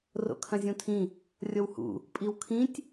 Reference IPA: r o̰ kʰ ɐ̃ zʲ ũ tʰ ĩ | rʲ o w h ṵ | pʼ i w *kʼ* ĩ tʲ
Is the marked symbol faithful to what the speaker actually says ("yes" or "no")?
no